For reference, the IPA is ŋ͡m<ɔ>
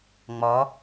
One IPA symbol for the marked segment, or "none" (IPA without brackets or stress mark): ɔ